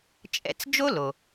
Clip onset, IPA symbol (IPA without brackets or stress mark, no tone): t͡ʃʼ